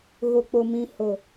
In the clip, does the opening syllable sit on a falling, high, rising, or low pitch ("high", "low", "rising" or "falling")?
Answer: low